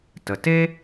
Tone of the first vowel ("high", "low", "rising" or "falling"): low